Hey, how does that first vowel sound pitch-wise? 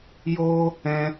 high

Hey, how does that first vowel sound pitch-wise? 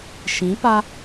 rising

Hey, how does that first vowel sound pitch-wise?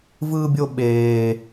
high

